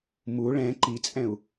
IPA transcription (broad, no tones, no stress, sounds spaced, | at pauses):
m u ɭ ɛ̃ ǃ i t͡sʼ ɛ̃ u̯